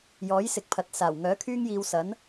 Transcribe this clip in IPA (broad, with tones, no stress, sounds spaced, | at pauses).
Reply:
j ɔː˨˥ j s ɪ˨˥ k̚ pʰ ɐ˨ t̚ s aː˨˩ w ŋ œː˨˥ kʰ yː˥ ŋ j iː˧ w s ɐ˨˥ n